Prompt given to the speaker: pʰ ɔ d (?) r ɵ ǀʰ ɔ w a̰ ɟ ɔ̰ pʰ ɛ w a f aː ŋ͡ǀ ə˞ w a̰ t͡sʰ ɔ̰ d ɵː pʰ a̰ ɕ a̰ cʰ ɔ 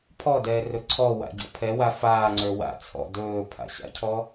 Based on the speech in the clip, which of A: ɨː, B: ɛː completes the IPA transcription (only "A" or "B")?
B